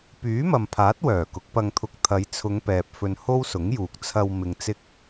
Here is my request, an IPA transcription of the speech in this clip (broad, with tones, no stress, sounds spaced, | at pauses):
p yː˨˥ m ɐ˨ m pʰ aː˨˥ t̚ w œː˨˩ k ʊ˨˥ k̚ p ɐ˧ ŋ t̪ʰ ʊ˧ k̚ t̪ʰ ɐ˨˧ j t͡sʰ ʊ˨˧ ŋ p ɛː˨ p̚ f ɵ˧ n h o˥ w s ʊ˨˥ ŋ j uː˨ k̚ t͡sʰ ɐ˧ w m ɪ˧ ŋ t͡s ɪ˥ k̚